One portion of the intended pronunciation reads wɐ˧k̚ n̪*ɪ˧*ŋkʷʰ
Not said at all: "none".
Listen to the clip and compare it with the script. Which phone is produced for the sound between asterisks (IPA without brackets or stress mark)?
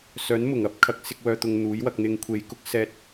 ɪ˧